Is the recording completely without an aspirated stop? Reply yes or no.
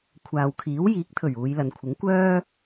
no